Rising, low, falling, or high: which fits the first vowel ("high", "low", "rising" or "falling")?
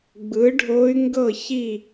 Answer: rising